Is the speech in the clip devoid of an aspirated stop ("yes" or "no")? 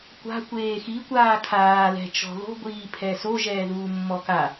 no